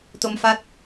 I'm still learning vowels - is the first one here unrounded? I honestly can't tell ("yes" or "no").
no